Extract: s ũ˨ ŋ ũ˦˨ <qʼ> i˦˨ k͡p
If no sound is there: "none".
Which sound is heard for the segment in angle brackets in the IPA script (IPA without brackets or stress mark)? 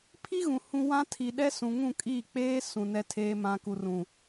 kʼ